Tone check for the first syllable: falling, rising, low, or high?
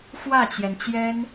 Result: falling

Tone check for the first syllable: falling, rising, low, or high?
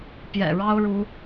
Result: low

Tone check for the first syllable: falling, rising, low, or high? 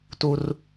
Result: high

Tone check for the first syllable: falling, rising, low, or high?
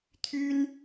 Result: high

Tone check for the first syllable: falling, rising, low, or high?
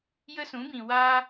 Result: high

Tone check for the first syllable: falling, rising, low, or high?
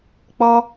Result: high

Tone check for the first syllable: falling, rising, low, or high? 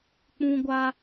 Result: high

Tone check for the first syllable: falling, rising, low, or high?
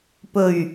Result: low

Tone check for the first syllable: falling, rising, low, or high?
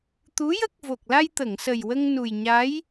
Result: rising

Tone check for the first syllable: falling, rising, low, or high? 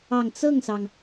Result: low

